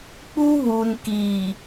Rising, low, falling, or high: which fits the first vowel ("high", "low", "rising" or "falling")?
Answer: high